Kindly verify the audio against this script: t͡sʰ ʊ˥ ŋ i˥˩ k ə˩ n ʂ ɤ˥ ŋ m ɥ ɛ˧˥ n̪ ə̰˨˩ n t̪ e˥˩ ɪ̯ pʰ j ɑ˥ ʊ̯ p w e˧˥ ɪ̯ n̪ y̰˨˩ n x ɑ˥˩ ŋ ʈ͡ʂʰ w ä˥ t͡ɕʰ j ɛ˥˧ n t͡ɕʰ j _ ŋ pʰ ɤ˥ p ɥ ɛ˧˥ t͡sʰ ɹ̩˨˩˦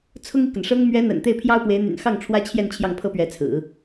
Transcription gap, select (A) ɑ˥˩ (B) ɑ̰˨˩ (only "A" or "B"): A